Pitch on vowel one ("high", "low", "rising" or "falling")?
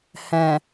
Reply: low